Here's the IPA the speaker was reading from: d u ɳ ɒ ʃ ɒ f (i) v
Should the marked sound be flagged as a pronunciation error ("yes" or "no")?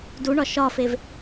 yes